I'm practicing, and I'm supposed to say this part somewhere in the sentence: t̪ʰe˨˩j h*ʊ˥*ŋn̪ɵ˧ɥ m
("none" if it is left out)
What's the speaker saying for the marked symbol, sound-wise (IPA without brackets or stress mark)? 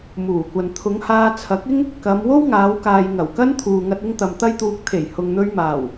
ʊ˨